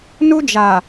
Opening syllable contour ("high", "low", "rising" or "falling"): high